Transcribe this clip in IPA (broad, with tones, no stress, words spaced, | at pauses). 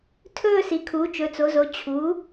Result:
tʰɵː˥˨ si˩˥kʰu˩˥ t͡ʃɵ˩˥t͡so˩˥zo˩˥ t͡ɕʰu˩˥